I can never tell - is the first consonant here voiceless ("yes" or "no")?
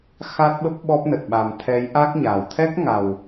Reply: yes